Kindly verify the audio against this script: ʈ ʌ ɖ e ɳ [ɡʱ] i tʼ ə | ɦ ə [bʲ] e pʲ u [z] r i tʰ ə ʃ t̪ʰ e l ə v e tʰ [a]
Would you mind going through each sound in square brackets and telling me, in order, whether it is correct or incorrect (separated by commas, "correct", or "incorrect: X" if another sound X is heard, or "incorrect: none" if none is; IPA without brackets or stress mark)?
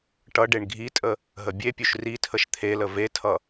correct, correct, incorrect: ʃ, incorrect: ʌ